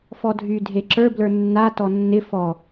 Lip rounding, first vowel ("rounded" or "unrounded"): rounded